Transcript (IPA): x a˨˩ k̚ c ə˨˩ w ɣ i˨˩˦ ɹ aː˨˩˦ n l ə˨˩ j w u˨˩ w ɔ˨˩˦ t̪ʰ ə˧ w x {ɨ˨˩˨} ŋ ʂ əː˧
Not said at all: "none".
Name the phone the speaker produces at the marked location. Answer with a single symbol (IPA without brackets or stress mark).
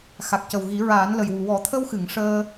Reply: ɨ˨˩˨